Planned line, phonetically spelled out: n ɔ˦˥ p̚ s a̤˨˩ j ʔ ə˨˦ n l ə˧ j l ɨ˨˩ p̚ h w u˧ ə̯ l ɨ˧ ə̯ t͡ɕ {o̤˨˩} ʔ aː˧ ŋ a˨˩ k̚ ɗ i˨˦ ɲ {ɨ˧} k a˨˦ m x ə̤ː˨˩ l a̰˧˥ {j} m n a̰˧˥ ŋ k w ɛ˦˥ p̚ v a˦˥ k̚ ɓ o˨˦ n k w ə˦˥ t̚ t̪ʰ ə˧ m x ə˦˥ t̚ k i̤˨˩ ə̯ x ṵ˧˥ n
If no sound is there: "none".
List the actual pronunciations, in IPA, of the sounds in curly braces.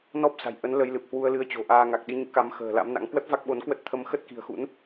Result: o̤˨˩, ɨ̰˧˥, none

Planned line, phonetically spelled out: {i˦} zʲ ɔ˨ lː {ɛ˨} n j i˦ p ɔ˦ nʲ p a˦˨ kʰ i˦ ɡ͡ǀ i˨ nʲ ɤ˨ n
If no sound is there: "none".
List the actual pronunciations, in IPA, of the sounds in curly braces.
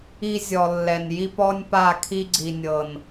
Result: i˦, ɛ˨

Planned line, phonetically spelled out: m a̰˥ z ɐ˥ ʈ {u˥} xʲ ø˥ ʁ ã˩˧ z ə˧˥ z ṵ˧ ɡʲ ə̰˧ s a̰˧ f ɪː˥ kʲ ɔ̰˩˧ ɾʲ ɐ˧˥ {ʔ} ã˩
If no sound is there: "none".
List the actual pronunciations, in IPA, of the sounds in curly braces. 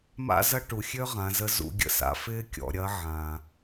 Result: u˩, ʕ

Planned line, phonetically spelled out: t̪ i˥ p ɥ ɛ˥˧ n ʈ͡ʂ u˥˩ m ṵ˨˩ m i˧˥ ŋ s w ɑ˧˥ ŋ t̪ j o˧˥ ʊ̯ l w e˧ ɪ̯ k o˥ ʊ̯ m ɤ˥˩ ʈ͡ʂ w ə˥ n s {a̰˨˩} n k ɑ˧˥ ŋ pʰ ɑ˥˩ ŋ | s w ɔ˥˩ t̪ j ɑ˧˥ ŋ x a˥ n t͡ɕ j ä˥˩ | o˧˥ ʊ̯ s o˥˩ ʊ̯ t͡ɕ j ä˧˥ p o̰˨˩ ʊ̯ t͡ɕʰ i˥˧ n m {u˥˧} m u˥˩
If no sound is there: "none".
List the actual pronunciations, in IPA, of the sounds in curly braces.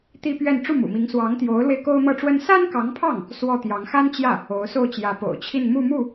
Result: a˥, u˥˧

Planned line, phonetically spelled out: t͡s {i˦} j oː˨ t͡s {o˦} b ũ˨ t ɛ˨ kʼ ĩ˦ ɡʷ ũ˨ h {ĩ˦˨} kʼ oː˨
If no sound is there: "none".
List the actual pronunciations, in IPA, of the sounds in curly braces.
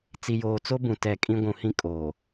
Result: i˨, o˦, ĩ˦

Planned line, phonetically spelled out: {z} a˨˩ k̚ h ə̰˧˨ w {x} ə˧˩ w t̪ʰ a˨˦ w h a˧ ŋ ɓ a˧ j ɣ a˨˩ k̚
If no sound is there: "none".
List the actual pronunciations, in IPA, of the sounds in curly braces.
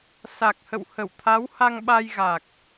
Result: s, h

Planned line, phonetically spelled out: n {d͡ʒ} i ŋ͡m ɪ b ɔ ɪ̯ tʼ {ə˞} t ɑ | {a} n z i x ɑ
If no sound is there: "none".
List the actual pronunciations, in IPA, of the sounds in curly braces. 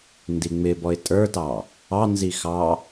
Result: d, ə˞, ɑ

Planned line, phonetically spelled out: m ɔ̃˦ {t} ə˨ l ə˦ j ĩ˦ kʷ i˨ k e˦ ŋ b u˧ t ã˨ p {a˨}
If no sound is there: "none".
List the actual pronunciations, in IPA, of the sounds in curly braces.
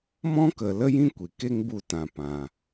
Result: k, ã˨

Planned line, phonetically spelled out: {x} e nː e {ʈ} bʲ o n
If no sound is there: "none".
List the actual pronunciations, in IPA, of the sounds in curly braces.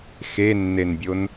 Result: x, n

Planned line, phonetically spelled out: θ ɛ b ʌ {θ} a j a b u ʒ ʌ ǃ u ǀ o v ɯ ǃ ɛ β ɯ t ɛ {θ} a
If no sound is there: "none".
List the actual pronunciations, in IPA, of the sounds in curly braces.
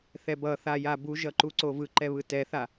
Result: θ, θ

